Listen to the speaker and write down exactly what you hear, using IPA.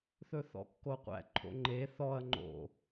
θ ɵ θ ɔ̰ kː o qʷ æ̰ ǃʰ o̰ ŋ͡ǃ e θ ɔ ɐ̯ ŋ͡ǃ o̰

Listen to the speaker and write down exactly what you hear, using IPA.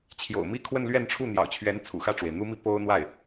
t͡ɕʰ j o̰˨˩ ʊ̯ m i˥ kʰ w ə˥˧ n l ɥ ɛ˥˧ n ʈ͡ʂʰ u˥˩ n̪ j ɑ̰˨˩ ʊ̯ t͡ɕʰ ɥ ɛ˧˥ n t͡sʰ ṵ˨˩ x ä˥˩ ʈ͡ʂ w e˩ ɪ̯ n̪ u˥ m i˥˩ p o˥ ʊ̯ n̪ w a˥˩ ɪ̯

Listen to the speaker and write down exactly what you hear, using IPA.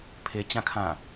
pʰ e t͡ɕ ã kʰ ã

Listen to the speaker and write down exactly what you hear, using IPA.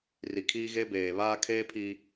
r i˨ kʰ iː˦ ɣ eː˦ b eː˨ β aː˦ kʰ eː˦ pʰ i˦

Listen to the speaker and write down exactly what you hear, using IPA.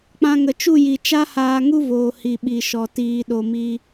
k͡p ã˧ ŋ ə˨ t͡ʃ u˦˨ j i˨ t͡ʃ a˦ h aː˧ ŋ u˦ v oː˨ h i˨ ɓ i˨ ʃ ɔ˨ t iː˧ ɗ o˧ m i˦

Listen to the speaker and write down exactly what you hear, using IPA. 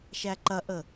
ʃ æ ǃ ɐ ʔ ə

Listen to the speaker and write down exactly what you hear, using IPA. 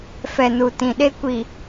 f ɛ˨ n u˨ t ĩ˨ ɗ e˦ kʷ i˨

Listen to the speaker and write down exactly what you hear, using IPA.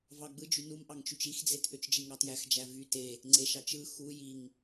v ɑ ɡ͡b ɯ d͡ʒ y n u m ʔ ɑ ŋ t͡ʃ y t͡ʃ i x d͡z e t ʔ ø t͡ʃ d͡ʒ i ŋ ɑ t j æ x d͡ʒ æ v y t e | ŋ͡ǀ e ʃ ɑ t͡ʃ ɯ x u j i ŋ

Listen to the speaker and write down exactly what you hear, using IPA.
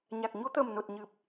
ɲ a˨˩ k̚ ɲ o˧ t̪ əː˨˩ m n o˨˩ t̚ ɲ ɨ˨˩ p̚

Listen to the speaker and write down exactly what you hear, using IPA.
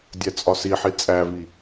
dʲ æ t͡sʼ ɒ s i ħ i t͡sʼ æ v i

